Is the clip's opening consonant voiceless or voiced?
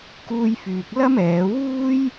voiceless